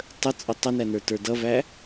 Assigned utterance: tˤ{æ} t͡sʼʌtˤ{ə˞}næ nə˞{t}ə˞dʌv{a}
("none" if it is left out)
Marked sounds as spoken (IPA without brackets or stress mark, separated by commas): ə, ə, t, æ